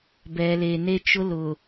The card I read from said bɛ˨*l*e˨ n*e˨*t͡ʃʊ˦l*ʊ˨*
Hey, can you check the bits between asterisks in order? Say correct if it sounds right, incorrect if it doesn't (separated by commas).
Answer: correct, incorrect, correct